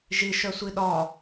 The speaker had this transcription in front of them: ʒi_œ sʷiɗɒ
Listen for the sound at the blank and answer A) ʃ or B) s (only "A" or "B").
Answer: A